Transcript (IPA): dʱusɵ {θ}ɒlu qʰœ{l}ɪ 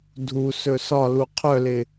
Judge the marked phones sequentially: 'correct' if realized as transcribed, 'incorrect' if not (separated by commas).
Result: incorrect, correct